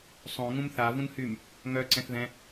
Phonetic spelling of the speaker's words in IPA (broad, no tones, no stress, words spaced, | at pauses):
sˤõŋũm θa vũnhym | ŋœ ǀɛ̃θðɛ̃